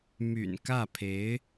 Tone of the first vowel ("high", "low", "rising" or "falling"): low